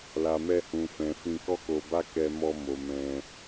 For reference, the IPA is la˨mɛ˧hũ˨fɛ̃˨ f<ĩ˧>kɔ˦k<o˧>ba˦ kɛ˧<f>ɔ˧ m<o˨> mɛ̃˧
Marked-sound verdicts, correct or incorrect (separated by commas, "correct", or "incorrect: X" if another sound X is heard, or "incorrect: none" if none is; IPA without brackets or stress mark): correct, correct, incorrect: m, correct